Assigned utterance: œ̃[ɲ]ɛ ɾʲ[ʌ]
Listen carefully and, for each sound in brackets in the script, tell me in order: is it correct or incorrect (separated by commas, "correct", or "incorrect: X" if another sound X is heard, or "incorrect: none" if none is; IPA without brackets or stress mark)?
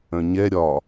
correct, incorrect: ɒ